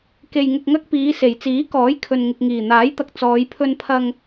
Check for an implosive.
absent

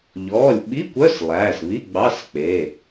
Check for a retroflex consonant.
absent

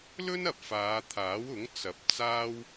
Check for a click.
absent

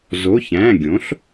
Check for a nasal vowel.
present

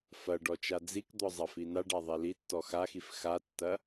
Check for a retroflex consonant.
present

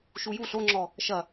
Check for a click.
present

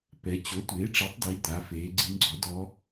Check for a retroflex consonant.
present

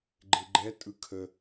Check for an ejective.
present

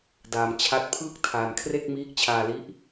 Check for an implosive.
absent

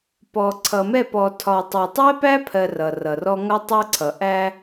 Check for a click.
present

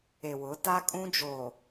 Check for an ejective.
present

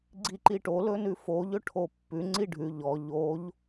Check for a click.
present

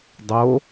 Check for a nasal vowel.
absent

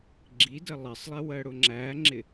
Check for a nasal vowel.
absent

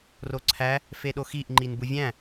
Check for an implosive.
present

